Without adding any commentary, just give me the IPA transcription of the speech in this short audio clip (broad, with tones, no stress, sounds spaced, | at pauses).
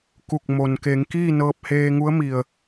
k u˧˩ k̚ m o˩ n k e˩˧ ŋ k iː˥˨ n ɤː˧ p̚ h eː˧ ŋ u˧˥ ə̯ m i˩ ə̯